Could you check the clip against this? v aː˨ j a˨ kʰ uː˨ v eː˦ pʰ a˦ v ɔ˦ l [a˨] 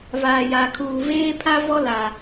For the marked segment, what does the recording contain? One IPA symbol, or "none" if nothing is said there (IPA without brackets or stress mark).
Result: a˨